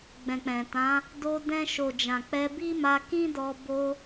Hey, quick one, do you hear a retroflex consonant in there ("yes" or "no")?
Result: no